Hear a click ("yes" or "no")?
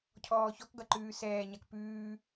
yes